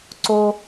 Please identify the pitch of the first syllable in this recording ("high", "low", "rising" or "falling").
high